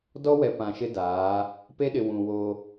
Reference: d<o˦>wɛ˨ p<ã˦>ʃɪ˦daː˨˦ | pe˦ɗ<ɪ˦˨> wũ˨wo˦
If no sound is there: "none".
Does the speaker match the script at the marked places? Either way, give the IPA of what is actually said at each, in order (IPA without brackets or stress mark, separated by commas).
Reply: ɔ˦, ã˨, ɪ˨